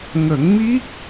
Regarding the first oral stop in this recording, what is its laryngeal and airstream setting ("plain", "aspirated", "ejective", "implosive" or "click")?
plain